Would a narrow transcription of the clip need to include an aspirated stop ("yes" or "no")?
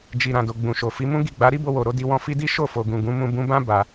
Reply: no